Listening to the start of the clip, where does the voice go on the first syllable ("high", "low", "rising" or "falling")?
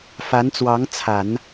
rising